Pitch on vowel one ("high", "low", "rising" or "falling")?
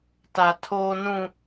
high